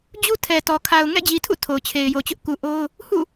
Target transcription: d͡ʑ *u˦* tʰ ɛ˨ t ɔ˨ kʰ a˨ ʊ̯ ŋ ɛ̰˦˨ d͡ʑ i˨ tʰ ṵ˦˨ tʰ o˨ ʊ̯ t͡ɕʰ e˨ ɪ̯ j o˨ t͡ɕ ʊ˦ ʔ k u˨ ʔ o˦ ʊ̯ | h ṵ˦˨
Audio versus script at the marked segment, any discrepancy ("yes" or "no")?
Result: no